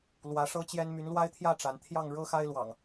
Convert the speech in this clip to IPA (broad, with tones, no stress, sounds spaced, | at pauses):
l w ä˨˦ ʂ ɤ˦ t͡ɕ j ɛ˦ n m y˨˦ n l w a˦ ɪ̯ t̪ʰ j ä˥˨ ʈ͡ʂ a˨˦ n t̪ʰ j ɑ˥˨ ŋ ɻ ɤ˦ x a˦ ɪ̯ l w ɑ̰˨˩ ŋ